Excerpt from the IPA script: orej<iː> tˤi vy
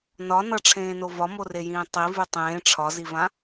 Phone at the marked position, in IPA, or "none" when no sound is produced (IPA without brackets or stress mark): ĩː